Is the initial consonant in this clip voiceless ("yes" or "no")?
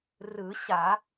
no